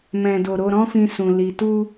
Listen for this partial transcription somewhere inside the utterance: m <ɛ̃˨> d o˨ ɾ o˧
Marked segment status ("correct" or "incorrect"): correct